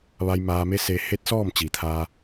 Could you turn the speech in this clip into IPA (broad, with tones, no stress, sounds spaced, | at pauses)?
ʋ a˧ j m aː˧ m e˧˥ s e˧ h e˧˥ t̚ s ɔː˥˨ m t͡ɕ iː˩˧ t̪ʰ aː˧